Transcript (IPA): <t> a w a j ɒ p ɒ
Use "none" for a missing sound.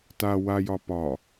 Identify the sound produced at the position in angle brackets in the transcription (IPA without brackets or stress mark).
t